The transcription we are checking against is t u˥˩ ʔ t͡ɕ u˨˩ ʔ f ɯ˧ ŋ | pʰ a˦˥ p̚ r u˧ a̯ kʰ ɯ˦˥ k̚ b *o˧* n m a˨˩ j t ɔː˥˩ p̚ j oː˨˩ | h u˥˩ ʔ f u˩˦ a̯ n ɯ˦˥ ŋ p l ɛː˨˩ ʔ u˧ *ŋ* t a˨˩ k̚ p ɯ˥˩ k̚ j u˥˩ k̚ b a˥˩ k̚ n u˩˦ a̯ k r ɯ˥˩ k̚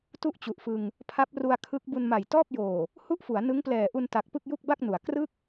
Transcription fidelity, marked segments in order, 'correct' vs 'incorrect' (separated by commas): incorrect, incorrect